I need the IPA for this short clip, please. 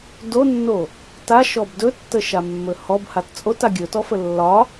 d o nː o | t a ʃ ɔ b d ɵ tː ə ʃ a mː ɵ h ɔ b h a t t͡sʼ o t a ɡʲ ɵ t ɔ f ə lː ɒ

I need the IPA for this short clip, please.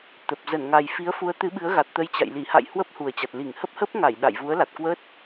t̪ ə˨˩ p̚ z ə˧˩ n ŋ a˨˩ j f i˨˦ ə̯ f u˨˦ ə̯ t̪ ɨ˨˦ ɓ ɨ˨˦ ə̯ ɣ a˨˩ t̚ t̪ ə˧ j t͡ɕ a̰˧˨ j l i˧˩ h a̰˧˨ j h w ə˦˥ p̚ h u˨˩ ə̯ t͡ɕ a˨˩ t̚ l i˧˩ ŋ h ə˦˥ p̚ h ə˦˥ p̚ ŋ a˧˩ j ɗ a̰˧˨ j v u˨˦ ə̯ l a˨˩ t̚ k w əː˦˥ t̚

